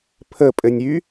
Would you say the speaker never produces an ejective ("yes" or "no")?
no